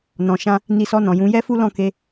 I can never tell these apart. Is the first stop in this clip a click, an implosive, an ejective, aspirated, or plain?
plain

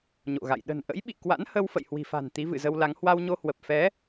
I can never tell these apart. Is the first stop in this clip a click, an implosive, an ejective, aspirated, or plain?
implosive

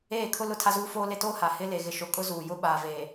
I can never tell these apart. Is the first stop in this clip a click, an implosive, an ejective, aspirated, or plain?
aspirated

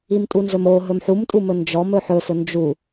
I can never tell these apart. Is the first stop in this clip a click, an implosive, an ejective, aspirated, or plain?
ejective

